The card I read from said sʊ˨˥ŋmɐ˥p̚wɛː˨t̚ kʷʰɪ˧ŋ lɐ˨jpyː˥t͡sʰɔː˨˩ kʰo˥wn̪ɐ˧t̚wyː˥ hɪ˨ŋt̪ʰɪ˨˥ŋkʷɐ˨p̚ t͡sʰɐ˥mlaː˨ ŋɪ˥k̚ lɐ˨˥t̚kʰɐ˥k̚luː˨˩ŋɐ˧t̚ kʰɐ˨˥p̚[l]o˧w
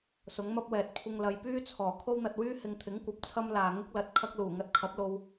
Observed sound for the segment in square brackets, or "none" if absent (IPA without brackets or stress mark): l